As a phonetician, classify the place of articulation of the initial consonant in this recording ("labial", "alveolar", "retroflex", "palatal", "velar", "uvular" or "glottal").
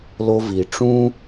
alveolar